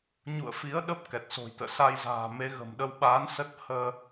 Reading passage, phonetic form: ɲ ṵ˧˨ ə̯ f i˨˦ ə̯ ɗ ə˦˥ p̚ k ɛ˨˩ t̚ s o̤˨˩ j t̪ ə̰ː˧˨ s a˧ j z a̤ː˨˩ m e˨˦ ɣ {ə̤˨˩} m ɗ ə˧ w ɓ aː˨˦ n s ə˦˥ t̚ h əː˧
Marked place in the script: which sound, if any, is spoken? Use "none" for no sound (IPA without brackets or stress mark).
ə̤˨˩